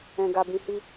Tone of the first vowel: low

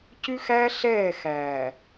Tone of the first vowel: high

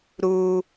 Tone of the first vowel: high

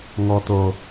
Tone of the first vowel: low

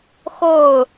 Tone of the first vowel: falling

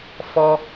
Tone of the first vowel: high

